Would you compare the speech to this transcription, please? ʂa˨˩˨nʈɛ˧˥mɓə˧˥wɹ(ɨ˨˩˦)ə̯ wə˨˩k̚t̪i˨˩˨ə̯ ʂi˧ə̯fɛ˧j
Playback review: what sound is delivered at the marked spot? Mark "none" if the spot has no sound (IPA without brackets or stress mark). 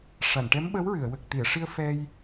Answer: ɨ˨˩˨